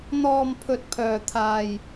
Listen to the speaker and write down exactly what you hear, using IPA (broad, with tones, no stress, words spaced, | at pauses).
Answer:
n̪ɔː˧mpʰɵ˧t̚ pʰœː˧t̪ʰaː˧j